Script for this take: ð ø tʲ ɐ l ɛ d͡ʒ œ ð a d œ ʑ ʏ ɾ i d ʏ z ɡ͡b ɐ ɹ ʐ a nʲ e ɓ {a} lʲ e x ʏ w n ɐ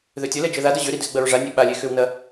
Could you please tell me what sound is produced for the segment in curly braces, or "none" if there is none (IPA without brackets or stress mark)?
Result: a